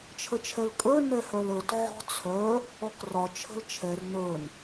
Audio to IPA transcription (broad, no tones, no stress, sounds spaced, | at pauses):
t͡ʃʰ ə t͡ʃʰ ɛ l kʼ ə˞ n ɛ h œ l ə˞ t ʕ ɔ̤ t͡sʰ œ | ɔ k r ɒ t͡ʃʰ ə̤ l t͡ʃʰ ɛ r n ə˞ n